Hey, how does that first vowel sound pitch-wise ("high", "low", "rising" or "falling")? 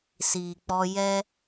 low